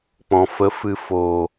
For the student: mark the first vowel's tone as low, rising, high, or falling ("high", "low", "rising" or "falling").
low